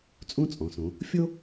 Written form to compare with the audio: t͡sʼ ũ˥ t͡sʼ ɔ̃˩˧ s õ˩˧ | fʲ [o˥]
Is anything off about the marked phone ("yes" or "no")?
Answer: no